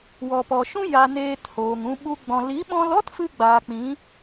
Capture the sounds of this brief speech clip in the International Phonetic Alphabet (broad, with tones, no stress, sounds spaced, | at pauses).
w ɔ˨ p ɔ˨ ʃ ũ˦ j a˧ n eː˧ t h oː˨ ŋ ũ˧ ɓ u˦ ɡ͡b ɔ̃˧ l i˨˦ ɓ ɔ̃˧ l ɔ˦ t f ɨ˦ ɡ͡b aː˨ k͡p ĩ˨˦